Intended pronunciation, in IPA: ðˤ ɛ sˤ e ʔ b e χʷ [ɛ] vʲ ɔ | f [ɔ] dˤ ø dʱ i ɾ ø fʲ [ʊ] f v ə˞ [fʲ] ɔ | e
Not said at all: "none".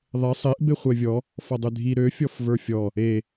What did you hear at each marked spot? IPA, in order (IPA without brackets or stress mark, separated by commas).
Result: ɛ, ɔ, ɔ, fʲ